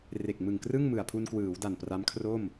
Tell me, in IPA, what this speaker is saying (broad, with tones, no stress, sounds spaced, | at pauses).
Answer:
r e˨˩ k̚ m ɯ˨˩ ŋ k r ɯ˥˩ ŋ m ɯ˨˩ a̯ pʰ u˧ n k w ɯː˩˦ w d a˨˩ n p r a˦˥ m kʰ r o˥˩ m